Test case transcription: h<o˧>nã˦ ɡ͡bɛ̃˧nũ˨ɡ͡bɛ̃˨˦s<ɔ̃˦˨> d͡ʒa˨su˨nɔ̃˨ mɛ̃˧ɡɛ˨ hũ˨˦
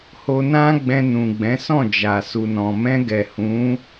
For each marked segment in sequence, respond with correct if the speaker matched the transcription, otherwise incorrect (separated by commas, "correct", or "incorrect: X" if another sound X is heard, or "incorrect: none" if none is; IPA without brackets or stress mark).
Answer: correct, correct